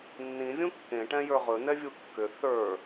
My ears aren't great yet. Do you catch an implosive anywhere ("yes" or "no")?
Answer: no